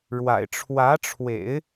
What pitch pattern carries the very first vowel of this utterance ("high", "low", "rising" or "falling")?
low